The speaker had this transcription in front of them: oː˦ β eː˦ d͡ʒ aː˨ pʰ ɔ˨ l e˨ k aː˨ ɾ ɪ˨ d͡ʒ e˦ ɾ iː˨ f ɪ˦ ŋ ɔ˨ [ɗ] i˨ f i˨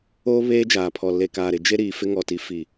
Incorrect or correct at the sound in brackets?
incorrect: t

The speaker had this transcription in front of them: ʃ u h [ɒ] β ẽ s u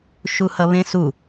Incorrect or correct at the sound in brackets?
incorrect: ʌ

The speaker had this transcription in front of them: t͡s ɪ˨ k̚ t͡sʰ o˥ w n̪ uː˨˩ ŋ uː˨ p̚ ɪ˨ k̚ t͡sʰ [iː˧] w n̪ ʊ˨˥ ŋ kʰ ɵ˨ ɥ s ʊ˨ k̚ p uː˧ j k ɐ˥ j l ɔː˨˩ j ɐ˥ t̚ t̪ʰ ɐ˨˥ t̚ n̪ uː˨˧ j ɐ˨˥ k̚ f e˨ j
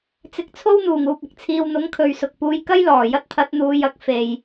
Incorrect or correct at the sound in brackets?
incorrect: iː˨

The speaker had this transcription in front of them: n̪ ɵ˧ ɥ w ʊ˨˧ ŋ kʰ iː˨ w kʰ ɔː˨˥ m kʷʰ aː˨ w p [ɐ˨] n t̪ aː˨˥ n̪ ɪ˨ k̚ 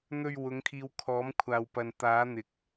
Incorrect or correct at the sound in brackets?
correct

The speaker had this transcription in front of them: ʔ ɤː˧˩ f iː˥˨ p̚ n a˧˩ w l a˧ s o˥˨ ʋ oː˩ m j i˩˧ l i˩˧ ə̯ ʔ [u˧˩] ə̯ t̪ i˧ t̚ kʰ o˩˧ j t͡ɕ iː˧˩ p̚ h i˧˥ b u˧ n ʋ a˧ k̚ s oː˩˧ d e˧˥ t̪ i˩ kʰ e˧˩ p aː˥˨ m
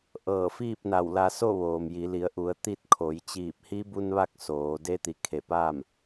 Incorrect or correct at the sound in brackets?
incorrect: u˩˧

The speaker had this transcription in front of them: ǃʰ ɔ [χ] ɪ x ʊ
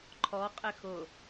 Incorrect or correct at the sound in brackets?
incorrect: qʼ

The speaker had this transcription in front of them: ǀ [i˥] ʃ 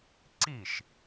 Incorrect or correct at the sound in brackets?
incorrect: i˥˩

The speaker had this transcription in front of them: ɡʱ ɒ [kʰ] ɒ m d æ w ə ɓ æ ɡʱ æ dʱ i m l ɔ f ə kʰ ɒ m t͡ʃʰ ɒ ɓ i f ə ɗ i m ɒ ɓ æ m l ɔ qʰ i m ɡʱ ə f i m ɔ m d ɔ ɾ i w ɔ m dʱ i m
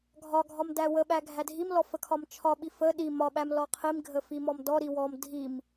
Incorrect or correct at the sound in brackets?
incorrect: ɡʱ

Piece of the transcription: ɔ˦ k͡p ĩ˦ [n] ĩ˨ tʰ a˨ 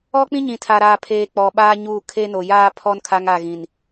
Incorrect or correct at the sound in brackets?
incorrect: ɲ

